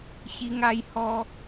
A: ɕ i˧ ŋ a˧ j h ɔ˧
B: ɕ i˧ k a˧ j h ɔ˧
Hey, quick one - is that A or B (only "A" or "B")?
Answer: A